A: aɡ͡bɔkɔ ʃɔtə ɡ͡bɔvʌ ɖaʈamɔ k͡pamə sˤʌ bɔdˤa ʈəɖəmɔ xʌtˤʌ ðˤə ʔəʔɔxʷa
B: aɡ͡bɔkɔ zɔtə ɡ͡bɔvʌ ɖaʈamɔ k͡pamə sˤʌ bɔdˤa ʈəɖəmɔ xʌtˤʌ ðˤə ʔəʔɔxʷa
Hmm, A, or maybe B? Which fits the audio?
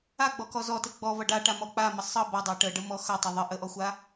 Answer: B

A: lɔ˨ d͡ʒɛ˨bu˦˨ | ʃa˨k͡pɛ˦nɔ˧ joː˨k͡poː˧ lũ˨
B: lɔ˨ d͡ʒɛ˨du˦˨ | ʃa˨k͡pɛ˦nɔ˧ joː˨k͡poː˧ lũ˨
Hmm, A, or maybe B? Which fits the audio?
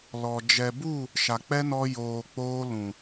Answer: A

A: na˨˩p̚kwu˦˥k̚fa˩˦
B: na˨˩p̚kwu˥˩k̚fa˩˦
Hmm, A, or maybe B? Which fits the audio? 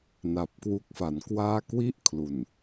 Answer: A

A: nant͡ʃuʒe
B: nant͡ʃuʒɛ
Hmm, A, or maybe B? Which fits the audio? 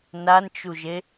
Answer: A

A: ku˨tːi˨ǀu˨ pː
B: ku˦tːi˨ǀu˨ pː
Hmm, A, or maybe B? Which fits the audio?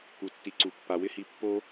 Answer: A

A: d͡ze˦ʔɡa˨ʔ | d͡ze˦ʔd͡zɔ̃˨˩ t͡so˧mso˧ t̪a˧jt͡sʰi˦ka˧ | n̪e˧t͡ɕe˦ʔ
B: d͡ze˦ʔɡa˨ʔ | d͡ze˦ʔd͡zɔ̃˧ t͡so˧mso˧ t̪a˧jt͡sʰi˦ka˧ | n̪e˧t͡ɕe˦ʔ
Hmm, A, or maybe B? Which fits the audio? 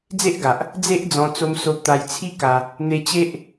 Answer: B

